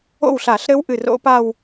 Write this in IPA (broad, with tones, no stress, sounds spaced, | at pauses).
o̰˥˩ w ɬ a˧˩˧ ɬ ɾ ɘ˦˥ w ʔ ɨ˧˩ r o̰˦˥ p a˥˧ w